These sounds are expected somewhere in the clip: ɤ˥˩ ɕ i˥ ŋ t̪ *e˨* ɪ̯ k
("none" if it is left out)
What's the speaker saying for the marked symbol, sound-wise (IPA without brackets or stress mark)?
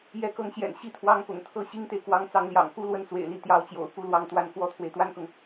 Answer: e˨